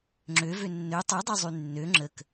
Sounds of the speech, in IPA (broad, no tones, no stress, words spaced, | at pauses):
ŋ͡ǁø vønːø tˤudˤø zˤynːø ŋ͡ǁək